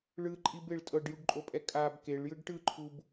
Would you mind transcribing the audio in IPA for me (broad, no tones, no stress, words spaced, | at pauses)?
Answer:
ɭɯǃʼibeɭ tʼɤɖjuɖǃʼopʼɛ kʼab keɭjɯɖ ʈɯǃʰub